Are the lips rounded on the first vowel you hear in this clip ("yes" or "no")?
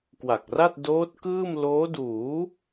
no